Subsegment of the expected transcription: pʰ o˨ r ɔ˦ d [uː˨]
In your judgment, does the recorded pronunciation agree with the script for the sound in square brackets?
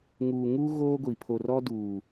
yes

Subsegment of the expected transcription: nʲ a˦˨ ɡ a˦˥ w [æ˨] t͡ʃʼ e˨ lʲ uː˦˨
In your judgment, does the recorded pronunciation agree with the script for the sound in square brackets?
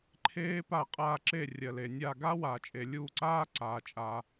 no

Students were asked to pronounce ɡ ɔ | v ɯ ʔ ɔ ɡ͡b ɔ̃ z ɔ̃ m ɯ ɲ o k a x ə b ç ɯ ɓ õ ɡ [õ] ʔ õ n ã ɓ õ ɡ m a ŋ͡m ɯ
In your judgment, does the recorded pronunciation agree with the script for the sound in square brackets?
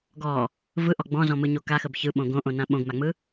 yes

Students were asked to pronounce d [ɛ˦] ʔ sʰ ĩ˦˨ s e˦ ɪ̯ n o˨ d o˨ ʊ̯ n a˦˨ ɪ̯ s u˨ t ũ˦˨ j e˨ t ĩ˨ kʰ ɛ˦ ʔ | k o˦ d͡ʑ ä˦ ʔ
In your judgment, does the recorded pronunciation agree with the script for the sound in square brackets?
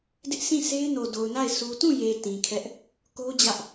no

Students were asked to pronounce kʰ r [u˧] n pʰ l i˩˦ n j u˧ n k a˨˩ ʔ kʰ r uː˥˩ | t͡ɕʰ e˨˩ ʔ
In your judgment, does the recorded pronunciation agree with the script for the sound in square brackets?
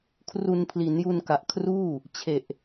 yes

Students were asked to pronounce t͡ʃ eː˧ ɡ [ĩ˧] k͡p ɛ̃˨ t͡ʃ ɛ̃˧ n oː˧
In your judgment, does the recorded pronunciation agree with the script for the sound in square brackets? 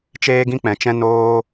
yes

